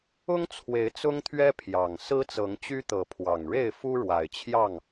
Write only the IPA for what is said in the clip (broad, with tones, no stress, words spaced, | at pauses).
ʊ˦ŋ t͡sʰwe˨˦ɪ̯t͡sʊ˦ŋt̪ʰɥɛ˦ pʰjɑ˨˩ŋ sɹ̩˦t͡sɤ˨˦ŋt͡ɕy˦t̪ɤ˨˦ pʰwɑ˨˩ŋɻe˥˨ɪ̯ fu˦ɻwa˨˩ɪ̯t͡ɕʰjɑ˥˨ŋ